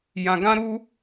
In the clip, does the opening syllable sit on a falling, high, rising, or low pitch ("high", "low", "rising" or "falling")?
low